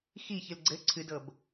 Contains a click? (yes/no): yes